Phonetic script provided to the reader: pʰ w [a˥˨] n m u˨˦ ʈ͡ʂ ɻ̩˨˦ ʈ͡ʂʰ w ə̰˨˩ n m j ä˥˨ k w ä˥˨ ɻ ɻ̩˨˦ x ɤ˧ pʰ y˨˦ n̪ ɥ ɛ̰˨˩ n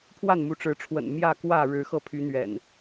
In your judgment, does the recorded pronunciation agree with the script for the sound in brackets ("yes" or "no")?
yes